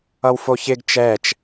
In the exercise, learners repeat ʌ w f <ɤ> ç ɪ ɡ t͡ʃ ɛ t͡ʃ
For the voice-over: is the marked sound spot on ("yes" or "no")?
no